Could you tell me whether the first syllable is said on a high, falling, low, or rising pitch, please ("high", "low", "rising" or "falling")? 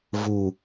low